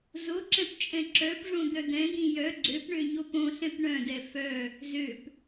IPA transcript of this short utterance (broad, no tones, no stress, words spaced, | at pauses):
zoǁɛ̃p t͡ʃʼɛ̃ǁœpʐõ d̪œd̪ɛ̃d̪ĩ jœ ɡ͡ǀøpɳø ɲopõɬɛ̃p ɳœ̃dɛ fœ | zøp